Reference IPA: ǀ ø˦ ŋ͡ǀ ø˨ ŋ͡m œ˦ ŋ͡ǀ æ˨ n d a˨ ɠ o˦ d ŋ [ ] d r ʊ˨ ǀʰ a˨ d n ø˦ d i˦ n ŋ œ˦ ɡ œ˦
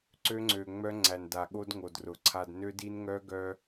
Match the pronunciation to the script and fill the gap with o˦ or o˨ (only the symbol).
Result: o˨